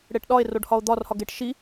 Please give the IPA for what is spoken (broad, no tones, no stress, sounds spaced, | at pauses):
ɽ e ʈ ɗ ɒ e̯ r o ɖ h ɒ o̯ d̪ ɒ r h ɒ ɡ e ʈ ʃ i